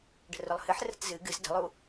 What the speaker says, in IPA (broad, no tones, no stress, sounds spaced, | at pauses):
ɖ ə̤ r ʊ lˠ h ɨ ħ r ə̤ t z ɨ ɡ ɨ z d ə̤ lˠ u